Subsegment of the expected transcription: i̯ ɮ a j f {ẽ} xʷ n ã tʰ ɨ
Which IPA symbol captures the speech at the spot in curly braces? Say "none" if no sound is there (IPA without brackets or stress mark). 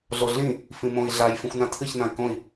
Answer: ĩ